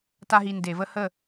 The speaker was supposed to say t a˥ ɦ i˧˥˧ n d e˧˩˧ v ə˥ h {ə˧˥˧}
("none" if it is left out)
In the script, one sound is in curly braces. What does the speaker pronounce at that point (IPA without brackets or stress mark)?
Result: ə˥˩